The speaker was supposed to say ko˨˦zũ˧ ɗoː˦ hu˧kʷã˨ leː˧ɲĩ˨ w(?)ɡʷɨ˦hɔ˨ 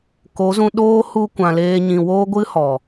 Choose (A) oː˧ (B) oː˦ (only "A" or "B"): B